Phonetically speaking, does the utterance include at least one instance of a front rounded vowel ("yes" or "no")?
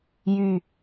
yes